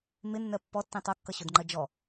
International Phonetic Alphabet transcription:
m ɪ nː ɜ pː ɔ tː ĩ tˤ ʌ kː ʌ ɕ ʊ d ŋ͡ǃ ɜ d͡ʒ ɔ

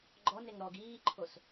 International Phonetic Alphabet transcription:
ɡ͡ǃ ɔ n e ŋ ɾ ɔ ɡ iː ǃʰ o s

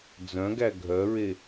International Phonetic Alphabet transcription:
d͡z œ̃ ɡ æ ɡʱ œ ɹ e

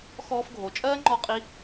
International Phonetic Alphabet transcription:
x ɔː˧ f ɡʱ o˩ t͡ʃʼ ɜː˥ ŋ͡ǃ ɔ˧ qʼ i˧

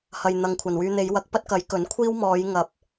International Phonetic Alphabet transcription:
h ɐ˧ j n̪ ɐ˧ ŋ kʷʰ ɐ˨ n w yː˧ n̪ e˨˧ j w ɐ˨˥ k̚ p ɐ˥ t̚ k ɐ˨˥ j k ɵ˨˥ n kʷʰ iː˥ w m ɔː˨˧ j ŋ ɐ˨ p̚

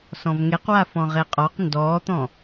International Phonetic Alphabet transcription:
s ɔ̃ v ŋ e q w a f ɔ̃ ʁ e qʼ ɔ q n d ɔː t̪ ɔ̃

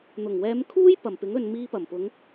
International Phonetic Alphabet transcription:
n̪ ʊ˨˩ ŋ w ɛː˨˧ m kʰ uː˥ j p ɐ˨˩ m p ɪ˨˥ ŋ ɵ˨ n m iː˧ p ɐ˨˩ m p ʊ˨˧ ŋ

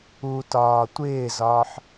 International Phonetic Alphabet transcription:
u t ɒː tʷ ɪː z ɒː ħ

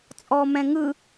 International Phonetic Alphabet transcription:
t͡sʼ ɔ m ɛ̃ ŋ ɯ

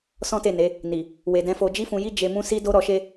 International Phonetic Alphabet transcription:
s ɔ̃˦ t e˦˨ n e˨˦ | n i˨ | w e˨ d ɛ̃˨˦ f o˧ d͡ʒ i˦ f ũ˧ j i˦ d͡ʒ e˧ m ũ˦ s i˦ d o˦ ɾ ɔ˧ ʃ e˦

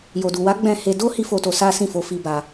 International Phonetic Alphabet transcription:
j o˨ d u˨ w a˨˦ ɡ͡b ɛ̃˦˨ h e˧ d o˦ h i˦ f o˧ t o˧ s a˦ s ĩ˦˨ f o˧ f i˧ b a˧

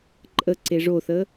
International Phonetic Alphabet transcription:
ǃʼ ə ǀ e ʐ o θ əː

